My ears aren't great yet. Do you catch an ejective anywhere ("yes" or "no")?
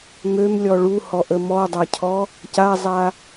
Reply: no